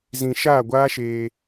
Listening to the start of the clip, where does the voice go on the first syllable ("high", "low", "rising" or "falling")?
low